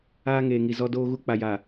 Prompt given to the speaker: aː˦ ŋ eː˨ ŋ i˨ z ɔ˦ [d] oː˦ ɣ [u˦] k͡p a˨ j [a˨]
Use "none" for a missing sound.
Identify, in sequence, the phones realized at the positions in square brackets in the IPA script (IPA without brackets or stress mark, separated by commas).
d, u˦, a˨